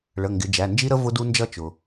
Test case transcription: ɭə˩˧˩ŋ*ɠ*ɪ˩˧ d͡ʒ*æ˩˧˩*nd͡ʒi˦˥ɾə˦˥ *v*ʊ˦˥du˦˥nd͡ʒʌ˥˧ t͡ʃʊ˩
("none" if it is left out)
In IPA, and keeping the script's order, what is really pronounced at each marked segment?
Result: ɡ, æ˩˧˩, v

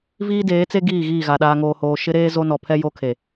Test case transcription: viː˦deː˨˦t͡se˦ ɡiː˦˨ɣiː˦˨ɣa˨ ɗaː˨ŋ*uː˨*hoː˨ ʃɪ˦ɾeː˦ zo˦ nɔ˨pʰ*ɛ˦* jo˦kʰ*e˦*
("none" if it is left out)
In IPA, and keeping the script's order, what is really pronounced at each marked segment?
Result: oː˨, ɛ˦, e˨

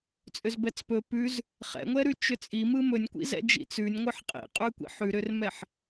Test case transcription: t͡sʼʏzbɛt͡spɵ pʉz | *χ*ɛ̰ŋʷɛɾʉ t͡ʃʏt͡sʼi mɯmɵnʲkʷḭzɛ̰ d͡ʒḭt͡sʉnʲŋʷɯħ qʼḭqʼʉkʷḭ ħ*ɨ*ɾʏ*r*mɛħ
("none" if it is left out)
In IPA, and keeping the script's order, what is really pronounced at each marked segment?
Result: χ, ʉ, r

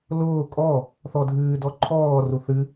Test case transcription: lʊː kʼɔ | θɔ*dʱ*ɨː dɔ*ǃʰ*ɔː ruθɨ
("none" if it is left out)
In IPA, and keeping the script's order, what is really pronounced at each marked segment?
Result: dʱ, ǃʰ

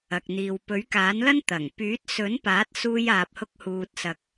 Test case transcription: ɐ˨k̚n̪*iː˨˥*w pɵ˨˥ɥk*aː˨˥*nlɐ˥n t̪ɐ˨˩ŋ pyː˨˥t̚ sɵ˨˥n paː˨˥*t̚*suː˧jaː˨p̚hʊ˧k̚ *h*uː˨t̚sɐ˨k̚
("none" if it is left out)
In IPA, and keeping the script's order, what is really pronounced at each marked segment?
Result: iː˨, aː˨˥, t̚, h

